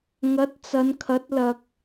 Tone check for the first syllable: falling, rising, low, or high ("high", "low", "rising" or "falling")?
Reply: rising